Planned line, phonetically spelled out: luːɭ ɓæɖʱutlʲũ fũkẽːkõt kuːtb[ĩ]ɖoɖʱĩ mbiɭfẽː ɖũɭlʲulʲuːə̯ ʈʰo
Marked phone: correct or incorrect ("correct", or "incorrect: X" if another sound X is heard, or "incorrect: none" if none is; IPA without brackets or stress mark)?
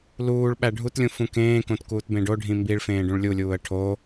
incorrect: ẽ